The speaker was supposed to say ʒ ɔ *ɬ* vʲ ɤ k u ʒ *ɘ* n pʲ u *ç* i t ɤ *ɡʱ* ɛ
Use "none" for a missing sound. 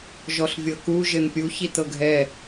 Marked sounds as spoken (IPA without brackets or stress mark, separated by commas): ɬ, ɘ, ç, ɡʱ